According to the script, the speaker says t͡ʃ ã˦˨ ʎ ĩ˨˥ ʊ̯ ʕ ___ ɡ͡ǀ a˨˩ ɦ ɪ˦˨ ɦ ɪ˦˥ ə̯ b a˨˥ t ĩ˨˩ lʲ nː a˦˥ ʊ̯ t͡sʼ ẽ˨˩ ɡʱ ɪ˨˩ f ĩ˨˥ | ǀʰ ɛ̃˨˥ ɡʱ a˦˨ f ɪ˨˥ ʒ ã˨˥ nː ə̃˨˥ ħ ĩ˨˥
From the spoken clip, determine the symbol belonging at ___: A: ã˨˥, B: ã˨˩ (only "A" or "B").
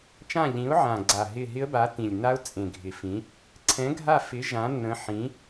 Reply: B